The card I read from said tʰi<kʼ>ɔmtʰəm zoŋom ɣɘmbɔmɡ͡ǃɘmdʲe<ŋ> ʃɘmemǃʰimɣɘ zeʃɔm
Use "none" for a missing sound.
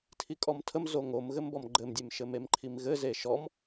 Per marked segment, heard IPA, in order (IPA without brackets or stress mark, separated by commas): kʼ, m